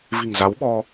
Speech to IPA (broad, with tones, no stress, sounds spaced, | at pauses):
v i̤˨˩ ŋ z a˨˦ w ɓ ɔ˧